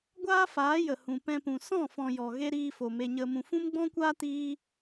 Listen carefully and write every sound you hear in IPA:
ɡʷ aː˦ f aː˨˦ j ə˨ h ũ˨ p ɛ̃˧ p ũ˨ s ɔ̃˦˨ f ɔ̃˨ j ɔ˨ ɣ e˦ ɾ iː˧ f o˨ m e˧ ɲ ə˧ m ũ˨ f ũ˦ m ɡ͡b ɔ̃˦ kʷ aː˦ t iː˦

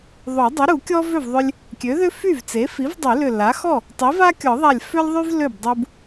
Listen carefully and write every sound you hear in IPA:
ðˤ o˨˩˦ dˤ ʏ˩˥ ɾ u˨˩˦ kʲ ɔ˥ v ø˥˩ v ðˤ ʏ˧ lʲ | kʲ ø˩˥ ð ʏ˥ f y˥˩ v t͡s e˩˥ f i˩˥ v dˤ y˨˩˦ l ʏ˧˩ l a˩˥ x ɔ˥˩ | tˤ i˩˥ v a˥ kʲ ɔ˨˩˦ ðˤ a˧˩ lʲ f ʏ˥ lʲ ðˤ y˥ v l ø˥˩ b dˤ u˧ b

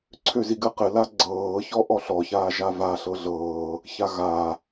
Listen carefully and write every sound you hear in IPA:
ǀʰ ø z i ɡ ɘ q ɘ l a ɡ͡ǀ ɤː ç ɔ ʔ ɔ ɬ ɔ ç aː ʒ a v a ɬ ɤ ɮ ɤː | ç a ɣ a

